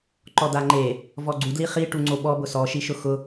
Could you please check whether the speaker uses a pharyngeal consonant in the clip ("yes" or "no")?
no